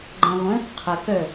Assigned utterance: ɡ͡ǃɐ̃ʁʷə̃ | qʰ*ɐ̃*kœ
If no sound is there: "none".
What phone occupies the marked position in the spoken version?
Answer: ɐ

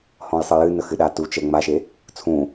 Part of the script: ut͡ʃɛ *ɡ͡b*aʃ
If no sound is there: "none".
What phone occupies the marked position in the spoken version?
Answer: ŋ͡m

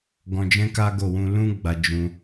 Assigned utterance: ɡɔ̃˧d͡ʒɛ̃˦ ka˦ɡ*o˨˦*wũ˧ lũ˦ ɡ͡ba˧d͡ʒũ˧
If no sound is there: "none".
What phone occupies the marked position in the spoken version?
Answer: o˦˨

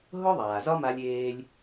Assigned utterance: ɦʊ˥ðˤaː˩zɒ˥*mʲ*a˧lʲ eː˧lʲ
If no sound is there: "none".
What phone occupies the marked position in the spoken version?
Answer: m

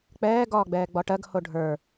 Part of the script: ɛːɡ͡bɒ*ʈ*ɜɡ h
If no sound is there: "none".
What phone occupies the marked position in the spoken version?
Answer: ʈ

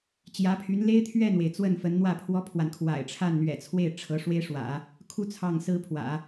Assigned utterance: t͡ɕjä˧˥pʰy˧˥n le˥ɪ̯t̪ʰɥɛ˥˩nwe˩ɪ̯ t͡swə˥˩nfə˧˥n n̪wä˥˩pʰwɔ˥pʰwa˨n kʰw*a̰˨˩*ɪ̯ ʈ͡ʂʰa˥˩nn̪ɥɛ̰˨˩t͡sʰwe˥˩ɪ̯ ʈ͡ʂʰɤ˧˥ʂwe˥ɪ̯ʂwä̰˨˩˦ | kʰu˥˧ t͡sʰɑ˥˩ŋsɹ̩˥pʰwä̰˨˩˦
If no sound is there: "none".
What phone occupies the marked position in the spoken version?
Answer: a̰˨˩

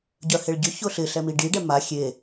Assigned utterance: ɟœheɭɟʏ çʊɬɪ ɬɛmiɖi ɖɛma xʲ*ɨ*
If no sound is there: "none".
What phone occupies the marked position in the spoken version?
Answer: e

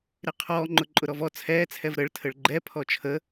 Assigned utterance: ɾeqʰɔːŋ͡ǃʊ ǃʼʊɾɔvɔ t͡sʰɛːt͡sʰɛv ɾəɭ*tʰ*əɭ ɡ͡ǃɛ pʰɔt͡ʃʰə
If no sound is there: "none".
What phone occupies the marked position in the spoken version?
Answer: tʰ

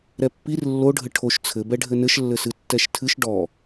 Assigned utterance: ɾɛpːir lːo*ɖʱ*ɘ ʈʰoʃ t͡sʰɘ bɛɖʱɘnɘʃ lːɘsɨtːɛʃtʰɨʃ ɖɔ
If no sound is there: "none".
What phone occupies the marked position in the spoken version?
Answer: ɖʱ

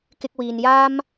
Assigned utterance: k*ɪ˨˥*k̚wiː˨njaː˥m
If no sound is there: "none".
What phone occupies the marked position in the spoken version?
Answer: ɪ˧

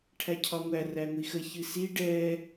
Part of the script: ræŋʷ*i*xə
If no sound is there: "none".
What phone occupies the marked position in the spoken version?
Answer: i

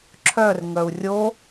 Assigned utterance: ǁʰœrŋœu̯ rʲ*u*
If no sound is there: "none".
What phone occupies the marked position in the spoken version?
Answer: o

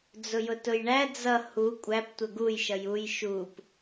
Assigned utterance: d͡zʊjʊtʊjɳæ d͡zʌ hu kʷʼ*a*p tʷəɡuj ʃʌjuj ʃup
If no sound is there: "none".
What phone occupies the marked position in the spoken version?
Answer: æ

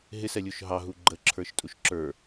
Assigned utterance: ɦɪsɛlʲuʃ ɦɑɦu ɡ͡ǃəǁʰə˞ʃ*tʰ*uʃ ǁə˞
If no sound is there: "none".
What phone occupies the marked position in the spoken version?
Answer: tʼ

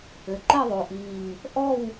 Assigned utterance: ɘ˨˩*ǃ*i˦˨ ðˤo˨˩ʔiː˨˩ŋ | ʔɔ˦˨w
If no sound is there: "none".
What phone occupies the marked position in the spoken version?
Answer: ǃ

